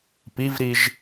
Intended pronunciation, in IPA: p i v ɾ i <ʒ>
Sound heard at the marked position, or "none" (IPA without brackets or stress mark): ʒ